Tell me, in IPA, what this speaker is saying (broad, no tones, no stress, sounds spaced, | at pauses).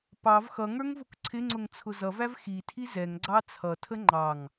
p ɑ v x ʌ ŋ ə˞ ŋ v ʊ k ǀʰ ɪ ŋ͡ǀ ʊ ŋ t͡sʰ ʊ z ʌ v æ v x i tʰ i z ɛ ŋ ɡ͡ǀ ɑ t͡sʰ ʌ tʰ ə ŋ͡ǃ ɑ ŋ